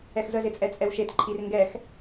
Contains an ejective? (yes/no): yes